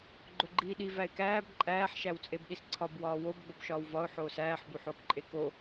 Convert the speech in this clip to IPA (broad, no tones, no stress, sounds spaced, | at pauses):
ɡ͡ǃ o ɡ͡ǃ iː ɗ i v æ ɪ̯ k æː b ǃʼ æː ħ ʃ æ w t͡sʼ e b ɗ i s ǀʰ ɒ b w ɒː w o b ɡ͡b o b ʃ ɒː w v ɒ ʊ̯ ħ oː s æː ħ b u ħ oː k ǃʼ e k o